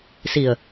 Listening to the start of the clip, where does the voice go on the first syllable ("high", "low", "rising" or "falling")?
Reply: low